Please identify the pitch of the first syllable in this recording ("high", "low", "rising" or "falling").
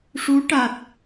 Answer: rising